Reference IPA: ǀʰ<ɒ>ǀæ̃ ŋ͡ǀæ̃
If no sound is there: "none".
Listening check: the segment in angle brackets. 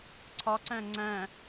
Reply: ɒ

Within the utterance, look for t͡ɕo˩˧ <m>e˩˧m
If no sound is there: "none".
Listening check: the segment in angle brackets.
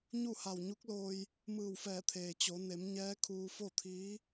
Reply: n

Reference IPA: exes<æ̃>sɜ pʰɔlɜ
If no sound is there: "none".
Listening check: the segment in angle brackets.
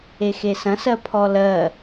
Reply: ɐ̃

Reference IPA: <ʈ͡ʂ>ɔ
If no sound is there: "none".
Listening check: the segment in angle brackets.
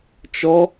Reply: t͡ʃ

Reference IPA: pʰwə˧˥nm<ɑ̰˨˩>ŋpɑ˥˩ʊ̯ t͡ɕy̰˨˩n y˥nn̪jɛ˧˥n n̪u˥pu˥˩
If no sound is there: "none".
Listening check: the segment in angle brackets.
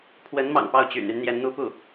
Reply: ɑ̰˨˩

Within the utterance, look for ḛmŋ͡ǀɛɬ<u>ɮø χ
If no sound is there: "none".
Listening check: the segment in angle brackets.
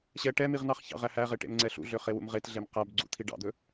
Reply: ṵ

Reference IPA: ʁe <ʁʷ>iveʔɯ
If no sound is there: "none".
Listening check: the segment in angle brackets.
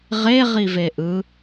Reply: ʁ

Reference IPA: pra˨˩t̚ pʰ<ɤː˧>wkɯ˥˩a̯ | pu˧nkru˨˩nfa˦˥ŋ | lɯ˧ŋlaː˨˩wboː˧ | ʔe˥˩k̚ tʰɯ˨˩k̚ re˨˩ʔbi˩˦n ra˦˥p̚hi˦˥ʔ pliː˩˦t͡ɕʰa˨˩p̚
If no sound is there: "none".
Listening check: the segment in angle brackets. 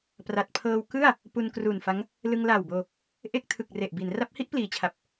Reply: ɤː˧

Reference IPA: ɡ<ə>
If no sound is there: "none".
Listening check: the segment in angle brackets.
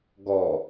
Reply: ɔ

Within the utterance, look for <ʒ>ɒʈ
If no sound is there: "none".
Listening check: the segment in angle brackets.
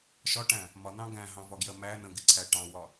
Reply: ʃ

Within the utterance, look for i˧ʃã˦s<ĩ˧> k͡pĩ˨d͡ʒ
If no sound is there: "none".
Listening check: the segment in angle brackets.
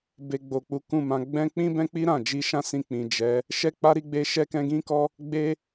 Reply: ĩ˧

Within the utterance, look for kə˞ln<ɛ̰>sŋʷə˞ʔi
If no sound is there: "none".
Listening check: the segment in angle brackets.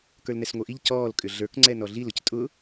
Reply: ɛ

